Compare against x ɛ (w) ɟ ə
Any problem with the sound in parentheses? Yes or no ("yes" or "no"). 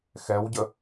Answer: no